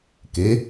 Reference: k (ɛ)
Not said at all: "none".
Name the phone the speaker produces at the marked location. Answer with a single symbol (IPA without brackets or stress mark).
e